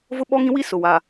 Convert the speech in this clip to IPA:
vʊ˦ɓɔ˦ŋĩ˦ wi˦sʊ˨wa˨

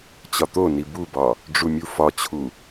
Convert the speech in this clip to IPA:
t͡ɕɒt̪oni bubɒ | ɖ͡ʐumʲufɒt͡ɕʰu

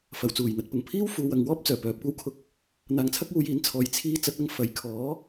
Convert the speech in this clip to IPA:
fɐ˨˩wt͡suː˨˩jn̪ɐ˨˥t̚pʊ˨ŋ pʰiː˥w fuː˨˧wɐ˨ŋwɔː˥p̚ t͡sœː˨˩pœː˨p̚kʷɐ˥wkʰʊ˧k̚ | n̪aː˨ŋt͡sʰɐ˥k̚ wuː˧jiː˨˥nt͡sʰɔː˨˧j t͡sʰiː˥ t͡sɐ˨˥t̚ɐ˧ŋ fɐ˨˧j kʰɔː˨˥

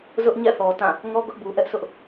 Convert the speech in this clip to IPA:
zʊ˦ʔɲɛ̰˦˨θɔ˨ tã˦˨ | ŋɔ˦ ɡʊ˦ʔbu˨ʔɛ˦ʔsʰʊ˦ʔ

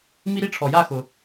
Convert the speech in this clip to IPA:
mi˦ɾi˦ʈ͡ʂʰɔ˩ja˥˨ xʊ˩

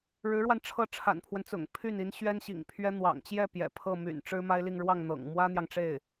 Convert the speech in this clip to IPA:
ɻɻ̩˧˥ɻwa˧n ʈ͡ʂʰɤ˥˩ʈ͡ʂʰa̰˨˩npʰwə˦nt͡sʊ̰˨˩ŋ pʰy˥˩ni˧˥n ɕɥɛ˥nɕḭ˨˩ŋpʰɥɛ˥ n̪wɑ̰˨˩ŋt͡ɕjɛ˥˩ pjɛ̰˨˩pʰɤ˥˩ my̰˨˩n ʈ͡ʂɻ̩˥ma˥ɪ̯li˥˧ŋ ɻwɑ˥˩ŋ n̪ɤ̰˨˩ŋ mwä˥n̪jɑ˨ŋʈ͡ʂe˥˩ɪ̯

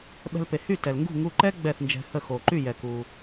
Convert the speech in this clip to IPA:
ɓɛ̤˧lpe˩ hy˥˩ tɛ˩lŋɡṳ˥˩ ŋu˧ǃɛ˥ ɡ͡bɛ˥˩θnd͡ʒɛ̤˧hə˥˩xo˩ ǃy˥˩jɛ˩ku˩

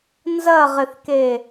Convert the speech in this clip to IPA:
nzɐʁɪθke

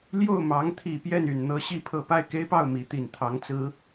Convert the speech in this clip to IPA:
ljo˥˩ʊ̯mɑ˧˥ŋ t̪ʰi˨˩pjɛ˥˩ny˨˩n n̪ɤ˧˥ ɕi˥˧pʰɤ˥˧ pa˥˩ɪ̯ke˥ɪ̯pɑ˥˩ʊ̯ mi˧˥t̪i˨˩nt̪ʰɑ˧˥ŋt͡sɹ̩˧˥

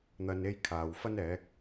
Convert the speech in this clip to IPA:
n̪ɐ˧n e˥jkʰaː˨w fɐ˥nɛː˨˥k̚

